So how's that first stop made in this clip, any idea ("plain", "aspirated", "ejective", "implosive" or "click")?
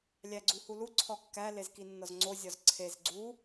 click